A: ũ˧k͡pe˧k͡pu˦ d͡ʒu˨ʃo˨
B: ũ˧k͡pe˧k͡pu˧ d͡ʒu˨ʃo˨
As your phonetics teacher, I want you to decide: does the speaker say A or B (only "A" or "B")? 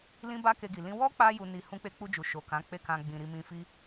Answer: B